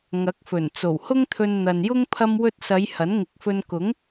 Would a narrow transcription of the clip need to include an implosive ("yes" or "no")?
no